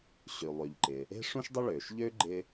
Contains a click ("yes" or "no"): yes